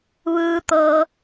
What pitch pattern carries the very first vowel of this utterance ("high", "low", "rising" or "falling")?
low